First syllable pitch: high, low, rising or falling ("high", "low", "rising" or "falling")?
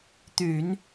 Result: low